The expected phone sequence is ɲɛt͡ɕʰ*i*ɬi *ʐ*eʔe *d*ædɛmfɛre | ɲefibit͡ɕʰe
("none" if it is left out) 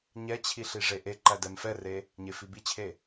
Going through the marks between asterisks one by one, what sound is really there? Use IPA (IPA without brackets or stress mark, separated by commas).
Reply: i, ʐ, ǃ